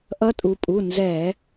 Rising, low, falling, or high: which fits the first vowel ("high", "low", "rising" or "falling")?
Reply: rising